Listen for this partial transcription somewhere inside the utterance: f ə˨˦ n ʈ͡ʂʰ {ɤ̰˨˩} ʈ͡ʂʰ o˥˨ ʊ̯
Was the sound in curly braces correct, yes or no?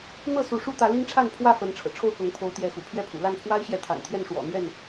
yes